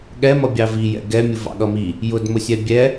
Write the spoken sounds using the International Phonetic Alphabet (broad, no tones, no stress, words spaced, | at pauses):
ɠɛ mʌbʲɑvijɛ̰ ɡɛmʲʊ vɑ̰ɠʌmi | jʊdmʊsʲɛ bʲɛ